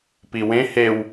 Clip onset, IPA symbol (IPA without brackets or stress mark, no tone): p